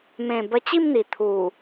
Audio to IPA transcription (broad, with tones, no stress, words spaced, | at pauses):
mẽ˨˩ bə˧t͡ɕi˥˧mn̪i˨˩ t̪ʰu˨˩